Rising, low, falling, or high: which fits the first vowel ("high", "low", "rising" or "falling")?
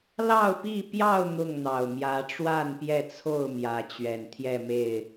falling